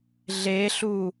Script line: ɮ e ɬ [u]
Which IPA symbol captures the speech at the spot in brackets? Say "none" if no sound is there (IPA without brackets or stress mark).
u